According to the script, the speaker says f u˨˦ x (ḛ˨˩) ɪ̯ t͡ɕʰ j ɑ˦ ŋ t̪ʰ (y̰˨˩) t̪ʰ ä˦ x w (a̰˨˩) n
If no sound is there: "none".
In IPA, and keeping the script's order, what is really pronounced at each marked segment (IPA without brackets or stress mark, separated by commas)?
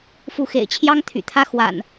ḛ˨˩, y̰˨˩, a̰˨˩